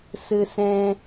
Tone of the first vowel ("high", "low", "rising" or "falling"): high